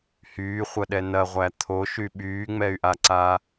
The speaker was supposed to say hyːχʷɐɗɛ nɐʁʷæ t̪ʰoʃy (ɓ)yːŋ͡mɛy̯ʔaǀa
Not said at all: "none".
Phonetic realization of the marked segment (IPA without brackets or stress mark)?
ɓ